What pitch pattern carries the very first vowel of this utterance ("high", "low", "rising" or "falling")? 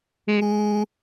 high